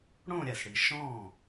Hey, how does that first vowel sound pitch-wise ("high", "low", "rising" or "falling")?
falling